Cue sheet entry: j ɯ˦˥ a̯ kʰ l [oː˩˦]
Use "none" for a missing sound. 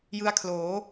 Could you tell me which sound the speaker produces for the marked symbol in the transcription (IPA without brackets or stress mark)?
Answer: oː˩˦